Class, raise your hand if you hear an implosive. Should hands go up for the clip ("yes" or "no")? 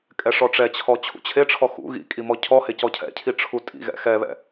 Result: no